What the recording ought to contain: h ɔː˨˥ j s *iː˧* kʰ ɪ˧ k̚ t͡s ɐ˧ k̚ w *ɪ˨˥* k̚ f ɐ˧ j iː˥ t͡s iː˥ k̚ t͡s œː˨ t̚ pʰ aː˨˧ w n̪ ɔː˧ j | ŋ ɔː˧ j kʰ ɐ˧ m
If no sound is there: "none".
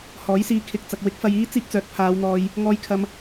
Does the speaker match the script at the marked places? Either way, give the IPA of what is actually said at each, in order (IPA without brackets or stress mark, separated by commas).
iː˧, ɪ˨˥